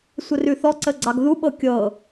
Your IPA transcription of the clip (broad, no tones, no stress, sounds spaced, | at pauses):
sʷ ə r ʉ θ ɔ ǀ ə ɡ͡ǀ ɑ ɡ ð u ɓ ɤ kʲ ɤ